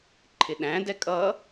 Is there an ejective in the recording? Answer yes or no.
yes